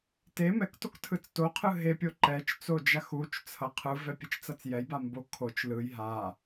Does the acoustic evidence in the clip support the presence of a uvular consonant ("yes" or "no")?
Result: yes